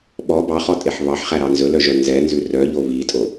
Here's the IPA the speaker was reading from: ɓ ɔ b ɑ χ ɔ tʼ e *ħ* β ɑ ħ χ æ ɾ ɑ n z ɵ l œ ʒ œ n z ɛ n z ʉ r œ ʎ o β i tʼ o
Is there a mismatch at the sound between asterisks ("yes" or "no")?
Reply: no